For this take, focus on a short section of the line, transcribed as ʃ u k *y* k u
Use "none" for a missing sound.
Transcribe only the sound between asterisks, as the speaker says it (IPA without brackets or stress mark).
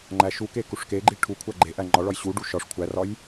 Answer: e